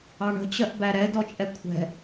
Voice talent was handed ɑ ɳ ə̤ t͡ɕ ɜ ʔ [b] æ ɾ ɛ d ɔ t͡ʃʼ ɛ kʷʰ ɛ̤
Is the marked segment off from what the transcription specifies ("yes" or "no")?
no